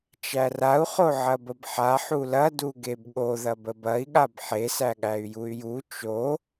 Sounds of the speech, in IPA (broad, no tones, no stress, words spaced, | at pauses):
t͡ʃærau̯ χoʕɐbəbħa ħulɐ duɡebɠo ðɐbəbɐi̯ ɠabħe sæɠæy̯juy̯ju t͡ʃo